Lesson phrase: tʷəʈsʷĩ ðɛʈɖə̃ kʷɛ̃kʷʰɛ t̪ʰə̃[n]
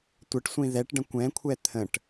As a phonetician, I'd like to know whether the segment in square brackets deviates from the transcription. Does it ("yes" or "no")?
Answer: yes